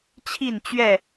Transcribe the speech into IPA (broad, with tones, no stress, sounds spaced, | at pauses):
t͡ɕʰ i˥˨ n t͡ɕ ɥ ɛ˥˨